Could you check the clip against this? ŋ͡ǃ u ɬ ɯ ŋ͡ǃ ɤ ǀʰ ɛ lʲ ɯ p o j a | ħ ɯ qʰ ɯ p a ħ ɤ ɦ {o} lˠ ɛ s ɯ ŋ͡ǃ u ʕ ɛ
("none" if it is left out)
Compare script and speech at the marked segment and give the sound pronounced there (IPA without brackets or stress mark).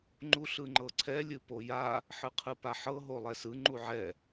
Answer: o